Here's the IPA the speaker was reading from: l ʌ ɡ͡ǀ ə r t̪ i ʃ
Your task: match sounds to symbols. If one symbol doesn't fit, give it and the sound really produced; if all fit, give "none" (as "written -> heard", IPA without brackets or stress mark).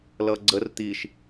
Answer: none